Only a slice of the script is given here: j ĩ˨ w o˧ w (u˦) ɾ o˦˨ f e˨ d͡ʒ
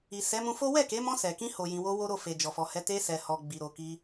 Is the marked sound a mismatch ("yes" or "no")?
yes